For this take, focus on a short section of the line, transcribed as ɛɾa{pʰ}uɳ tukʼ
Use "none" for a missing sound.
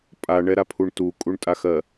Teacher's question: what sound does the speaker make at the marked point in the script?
pʰ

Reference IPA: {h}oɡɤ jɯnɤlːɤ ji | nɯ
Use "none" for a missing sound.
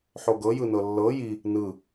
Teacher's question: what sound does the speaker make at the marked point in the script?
ħ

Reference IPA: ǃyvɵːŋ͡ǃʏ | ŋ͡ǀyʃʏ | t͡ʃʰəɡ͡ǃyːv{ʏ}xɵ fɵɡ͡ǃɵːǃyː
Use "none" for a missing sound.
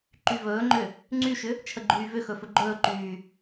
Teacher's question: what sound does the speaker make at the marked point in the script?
ʏ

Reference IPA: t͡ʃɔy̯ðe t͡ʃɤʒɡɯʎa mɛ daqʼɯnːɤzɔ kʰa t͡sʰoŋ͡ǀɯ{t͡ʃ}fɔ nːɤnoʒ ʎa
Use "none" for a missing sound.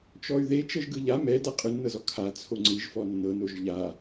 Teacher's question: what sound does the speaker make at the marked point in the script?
ʒ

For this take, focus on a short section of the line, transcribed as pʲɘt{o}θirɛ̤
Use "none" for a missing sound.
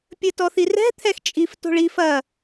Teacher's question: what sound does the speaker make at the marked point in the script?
ɔ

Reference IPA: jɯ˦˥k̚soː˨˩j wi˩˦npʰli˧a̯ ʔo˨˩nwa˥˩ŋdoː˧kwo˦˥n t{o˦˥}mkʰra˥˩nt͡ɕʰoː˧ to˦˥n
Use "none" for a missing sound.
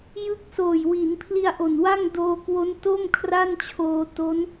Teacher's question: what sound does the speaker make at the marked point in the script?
o˥˩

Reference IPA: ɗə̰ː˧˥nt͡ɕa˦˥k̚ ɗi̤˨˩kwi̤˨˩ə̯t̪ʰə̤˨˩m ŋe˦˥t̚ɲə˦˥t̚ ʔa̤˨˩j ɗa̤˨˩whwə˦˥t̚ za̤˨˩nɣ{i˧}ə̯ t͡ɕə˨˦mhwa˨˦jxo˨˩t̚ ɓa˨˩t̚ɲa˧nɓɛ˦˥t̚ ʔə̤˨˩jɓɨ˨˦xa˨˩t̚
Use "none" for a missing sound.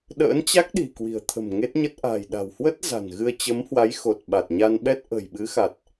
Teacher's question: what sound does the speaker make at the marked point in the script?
ɨ˧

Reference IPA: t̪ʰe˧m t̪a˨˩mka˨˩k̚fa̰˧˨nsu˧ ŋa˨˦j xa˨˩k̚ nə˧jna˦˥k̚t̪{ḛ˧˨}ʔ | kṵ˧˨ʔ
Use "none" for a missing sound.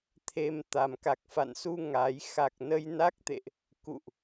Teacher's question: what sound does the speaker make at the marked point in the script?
ḛ˧˨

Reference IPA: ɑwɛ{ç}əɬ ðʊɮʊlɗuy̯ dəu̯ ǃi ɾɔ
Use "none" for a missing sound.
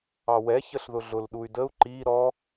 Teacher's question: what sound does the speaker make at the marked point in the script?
ç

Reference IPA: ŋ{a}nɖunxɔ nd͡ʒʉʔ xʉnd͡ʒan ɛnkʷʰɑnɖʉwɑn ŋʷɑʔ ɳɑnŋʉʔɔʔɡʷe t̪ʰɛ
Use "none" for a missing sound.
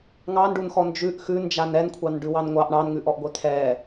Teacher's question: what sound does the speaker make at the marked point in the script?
ɑ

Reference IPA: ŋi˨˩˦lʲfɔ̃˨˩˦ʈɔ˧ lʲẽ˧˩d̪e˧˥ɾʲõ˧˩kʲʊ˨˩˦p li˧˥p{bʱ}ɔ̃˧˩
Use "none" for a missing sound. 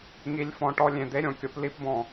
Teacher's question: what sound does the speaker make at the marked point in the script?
b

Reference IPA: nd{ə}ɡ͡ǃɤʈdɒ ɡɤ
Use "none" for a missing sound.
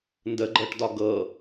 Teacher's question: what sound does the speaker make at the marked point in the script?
ə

